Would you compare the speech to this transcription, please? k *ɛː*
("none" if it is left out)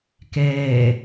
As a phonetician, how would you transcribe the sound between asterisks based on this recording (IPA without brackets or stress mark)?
ɛː